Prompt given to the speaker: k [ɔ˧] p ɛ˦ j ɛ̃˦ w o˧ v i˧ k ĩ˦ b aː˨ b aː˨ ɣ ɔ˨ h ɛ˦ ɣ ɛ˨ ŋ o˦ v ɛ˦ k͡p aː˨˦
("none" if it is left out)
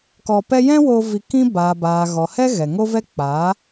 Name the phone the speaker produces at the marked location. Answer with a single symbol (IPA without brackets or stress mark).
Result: ɔ˧